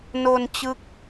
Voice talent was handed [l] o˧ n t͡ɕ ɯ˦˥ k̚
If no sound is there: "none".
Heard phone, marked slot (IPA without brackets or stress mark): n